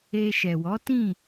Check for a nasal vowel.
present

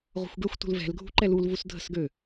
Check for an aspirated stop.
absent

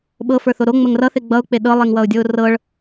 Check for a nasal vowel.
absent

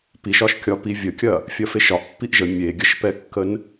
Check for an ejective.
absent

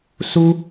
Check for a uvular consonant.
absent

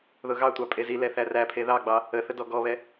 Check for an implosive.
absent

